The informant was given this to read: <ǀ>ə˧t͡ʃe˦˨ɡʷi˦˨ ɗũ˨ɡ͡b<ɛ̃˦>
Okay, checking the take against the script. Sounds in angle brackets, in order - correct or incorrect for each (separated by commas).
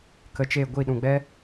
incorrect, incorrect